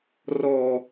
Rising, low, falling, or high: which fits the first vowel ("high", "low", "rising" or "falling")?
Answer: low